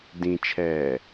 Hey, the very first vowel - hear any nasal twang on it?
yes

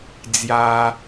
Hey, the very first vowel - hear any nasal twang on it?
no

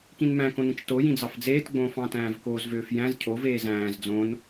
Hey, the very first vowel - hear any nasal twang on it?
yes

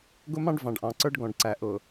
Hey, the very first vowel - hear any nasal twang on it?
no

